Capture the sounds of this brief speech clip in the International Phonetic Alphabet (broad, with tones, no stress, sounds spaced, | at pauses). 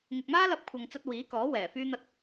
ŋ ɪ˨ k̚ m aː˥ l ɐ˧ p̚ kʷʰ ɐ˧ ŋ t͡s ɐ˥ t̚ w iː˨˥ k ɔː˨˥ w ɛː˨˩ f yː˥ n̪ ɐ˥ t̚